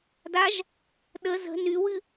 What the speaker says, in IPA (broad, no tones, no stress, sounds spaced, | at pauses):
d a ʒ | ɗ ə z ə̤ n y w ɨ